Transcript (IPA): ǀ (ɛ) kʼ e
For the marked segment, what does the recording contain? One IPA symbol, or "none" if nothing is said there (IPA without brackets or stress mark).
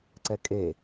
ɛ